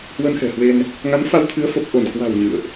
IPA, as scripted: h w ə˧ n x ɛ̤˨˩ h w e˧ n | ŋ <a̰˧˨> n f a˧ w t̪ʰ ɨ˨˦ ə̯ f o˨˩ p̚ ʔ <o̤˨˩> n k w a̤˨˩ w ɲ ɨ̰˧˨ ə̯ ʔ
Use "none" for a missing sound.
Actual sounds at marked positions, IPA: a˨˦, o˧˩

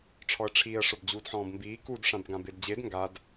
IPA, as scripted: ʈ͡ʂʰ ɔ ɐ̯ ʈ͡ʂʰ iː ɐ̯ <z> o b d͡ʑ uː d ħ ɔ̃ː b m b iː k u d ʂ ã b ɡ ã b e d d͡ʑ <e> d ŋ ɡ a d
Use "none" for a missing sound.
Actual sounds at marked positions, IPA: ʂ, e

